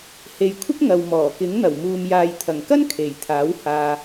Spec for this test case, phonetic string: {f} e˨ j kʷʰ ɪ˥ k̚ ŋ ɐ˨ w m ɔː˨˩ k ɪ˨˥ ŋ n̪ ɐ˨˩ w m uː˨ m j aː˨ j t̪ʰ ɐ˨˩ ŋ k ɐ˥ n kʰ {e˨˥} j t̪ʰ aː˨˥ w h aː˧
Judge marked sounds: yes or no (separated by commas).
no, no